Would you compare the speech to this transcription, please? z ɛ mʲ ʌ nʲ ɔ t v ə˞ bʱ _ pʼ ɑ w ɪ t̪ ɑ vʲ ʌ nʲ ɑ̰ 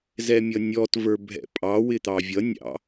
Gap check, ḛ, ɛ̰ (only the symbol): ɛ̰